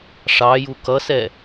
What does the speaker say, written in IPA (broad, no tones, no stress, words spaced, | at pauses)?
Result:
ʂɑju kʌsɛ